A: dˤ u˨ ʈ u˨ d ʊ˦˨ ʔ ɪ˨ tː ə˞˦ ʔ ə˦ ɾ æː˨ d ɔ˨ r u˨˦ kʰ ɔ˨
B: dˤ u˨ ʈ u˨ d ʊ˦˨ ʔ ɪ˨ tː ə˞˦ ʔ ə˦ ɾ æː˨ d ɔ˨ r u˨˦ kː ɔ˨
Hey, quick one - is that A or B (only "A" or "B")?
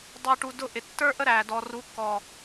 B